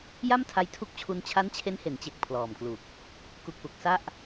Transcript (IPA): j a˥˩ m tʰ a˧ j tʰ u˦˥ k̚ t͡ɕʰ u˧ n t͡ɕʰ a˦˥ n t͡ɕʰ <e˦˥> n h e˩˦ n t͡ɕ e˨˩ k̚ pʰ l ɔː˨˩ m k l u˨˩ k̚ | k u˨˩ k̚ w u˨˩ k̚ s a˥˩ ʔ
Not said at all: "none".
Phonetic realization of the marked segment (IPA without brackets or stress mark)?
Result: e˦˥